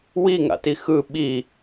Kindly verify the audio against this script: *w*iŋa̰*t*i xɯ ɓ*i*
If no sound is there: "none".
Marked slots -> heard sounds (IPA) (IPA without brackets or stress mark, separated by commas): w, t, i